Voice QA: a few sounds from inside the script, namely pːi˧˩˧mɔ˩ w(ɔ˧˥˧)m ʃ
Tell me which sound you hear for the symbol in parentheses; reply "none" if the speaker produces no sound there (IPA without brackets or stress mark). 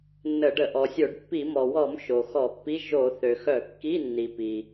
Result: ɔ˧˩˧